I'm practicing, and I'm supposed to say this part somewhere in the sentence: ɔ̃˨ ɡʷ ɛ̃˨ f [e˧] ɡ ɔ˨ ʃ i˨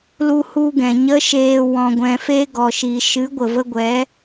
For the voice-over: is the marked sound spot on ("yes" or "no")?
yes